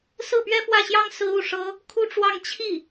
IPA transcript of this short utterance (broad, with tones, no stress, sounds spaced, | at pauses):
s ɹ̩˥˩ p ɥ ɛ˥ f w ä˥˩ ɕ j ɑ˥ ŋ s ɹ̩˥ u˥˩ ʂ ɤ˥ | kʰ u˥ ʈ͡ʂ w ɑ˥˧ ŋ t͡ɕʰ i˥˩